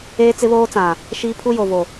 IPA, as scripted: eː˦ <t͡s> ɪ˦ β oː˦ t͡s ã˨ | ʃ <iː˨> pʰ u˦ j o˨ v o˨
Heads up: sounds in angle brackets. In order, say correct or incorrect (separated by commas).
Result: correct, incorrect